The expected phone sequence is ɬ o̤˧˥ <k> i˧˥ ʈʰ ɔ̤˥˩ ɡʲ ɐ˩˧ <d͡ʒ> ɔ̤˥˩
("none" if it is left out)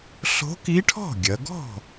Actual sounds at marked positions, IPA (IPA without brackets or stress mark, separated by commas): k, ɡ